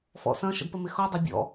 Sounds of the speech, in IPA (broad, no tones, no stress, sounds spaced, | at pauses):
f ɔ̰ s ɐ̃ ʃ ə̰ d p ə m ɪ x ɔ dˤ ɐ bʲ ɔ̰